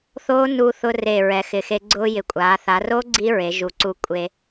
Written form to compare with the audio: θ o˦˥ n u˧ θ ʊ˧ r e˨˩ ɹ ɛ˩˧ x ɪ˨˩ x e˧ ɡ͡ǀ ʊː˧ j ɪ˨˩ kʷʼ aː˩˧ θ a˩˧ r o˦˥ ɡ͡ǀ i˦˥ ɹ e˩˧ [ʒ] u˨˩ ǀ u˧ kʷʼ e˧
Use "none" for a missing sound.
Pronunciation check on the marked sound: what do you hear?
ʒ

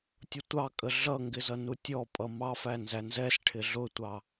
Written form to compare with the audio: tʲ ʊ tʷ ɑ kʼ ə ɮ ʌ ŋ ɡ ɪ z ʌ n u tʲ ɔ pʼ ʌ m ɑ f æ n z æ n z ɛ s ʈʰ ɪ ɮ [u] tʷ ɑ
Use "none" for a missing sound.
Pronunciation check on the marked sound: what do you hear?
ʊ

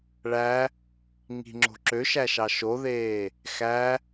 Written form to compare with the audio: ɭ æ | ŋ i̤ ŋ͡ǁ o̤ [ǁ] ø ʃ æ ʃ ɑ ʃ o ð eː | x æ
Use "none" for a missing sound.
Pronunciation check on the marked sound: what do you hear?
ǁ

